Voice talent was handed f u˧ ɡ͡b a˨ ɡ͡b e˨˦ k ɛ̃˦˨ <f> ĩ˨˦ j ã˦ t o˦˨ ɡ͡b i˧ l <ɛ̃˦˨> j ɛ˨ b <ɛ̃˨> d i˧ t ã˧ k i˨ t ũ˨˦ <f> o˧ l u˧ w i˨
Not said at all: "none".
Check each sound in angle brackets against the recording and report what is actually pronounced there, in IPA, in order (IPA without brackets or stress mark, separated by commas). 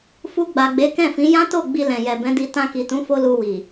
f, ɛ̃˨, ɛ̃˨˦, f